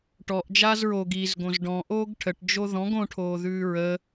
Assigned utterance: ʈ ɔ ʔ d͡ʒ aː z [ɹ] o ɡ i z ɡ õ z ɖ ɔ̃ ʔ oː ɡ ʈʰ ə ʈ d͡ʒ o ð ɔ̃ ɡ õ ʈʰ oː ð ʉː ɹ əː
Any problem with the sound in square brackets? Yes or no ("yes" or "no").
no